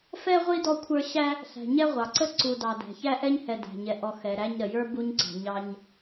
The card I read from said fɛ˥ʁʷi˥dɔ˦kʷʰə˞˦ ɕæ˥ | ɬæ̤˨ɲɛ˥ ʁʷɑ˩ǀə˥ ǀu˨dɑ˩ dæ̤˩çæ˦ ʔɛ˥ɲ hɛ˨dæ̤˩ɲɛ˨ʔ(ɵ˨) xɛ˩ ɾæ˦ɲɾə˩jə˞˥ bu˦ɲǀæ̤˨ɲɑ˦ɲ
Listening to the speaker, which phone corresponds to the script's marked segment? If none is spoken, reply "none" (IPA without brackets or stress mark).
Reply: ɔ˨